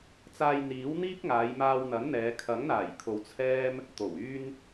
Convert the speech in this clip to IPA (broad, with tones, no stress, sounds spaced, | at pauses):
t͡s aː˧ j n̪ iː˨˥ w n̪ iː˥ k̚ ŋ aː˨˧ j m aː˧ w n̪ ɐ˨˥ n n̪ ɛː˨˧ kʰ ɐ˨˥ ŋ n̪ aː˨˩ j kʰ o˨ w t͡sʰ ɛː˥ m | t̪ o˨˩ w yː˥ n